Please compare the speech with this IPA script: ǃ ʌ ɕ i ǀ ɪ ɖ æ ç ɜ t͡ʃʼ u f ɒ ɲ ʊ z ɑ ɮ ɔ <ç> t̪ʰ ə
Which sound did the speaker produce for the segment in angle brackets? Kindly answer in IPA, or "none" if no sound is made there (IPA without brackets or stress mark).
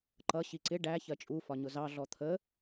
none